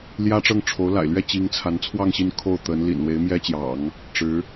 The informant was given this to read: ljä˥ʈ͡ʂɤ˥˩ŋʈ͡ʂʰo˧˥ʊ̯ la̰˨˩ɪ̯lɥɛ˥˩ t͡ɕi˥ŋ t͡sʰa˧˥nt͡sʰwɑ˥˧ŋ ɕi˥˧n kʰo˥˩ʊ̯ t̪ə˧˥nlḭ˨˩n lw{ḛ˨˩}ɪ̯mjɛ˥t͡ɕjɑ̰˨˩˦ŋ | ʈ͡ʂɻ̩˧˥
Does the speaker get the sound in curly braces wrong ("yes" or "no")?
yes